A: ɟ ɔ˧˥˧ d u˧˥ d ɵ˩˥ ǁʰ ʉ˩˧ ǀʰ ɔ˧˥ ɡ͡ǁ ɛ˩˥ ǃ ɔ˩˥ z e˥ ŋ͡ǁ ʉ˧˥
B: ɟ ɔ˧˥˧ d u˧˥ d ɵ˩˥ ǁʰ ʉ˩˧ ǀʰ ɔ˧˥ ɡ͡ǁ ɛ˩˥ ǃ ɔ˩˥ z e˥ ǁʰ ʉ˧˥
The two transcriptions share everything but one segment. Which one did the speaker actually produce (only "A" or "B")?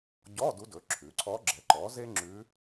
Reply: A